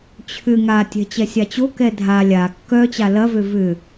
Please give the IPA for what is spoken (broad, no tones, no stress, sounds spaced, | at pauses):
t͡ɕʰ ʏ ŋ a tʲ ɛ̤ t͡ɕ ɛ sʲ a t͡ɕ o k ɛ dʱ a lʲ a kː œ t͡ɕ a l ɐ v ø v ʏ